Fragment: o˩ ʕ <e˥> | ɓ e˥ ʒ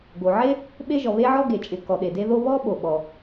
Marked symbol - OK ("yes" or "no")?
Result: yes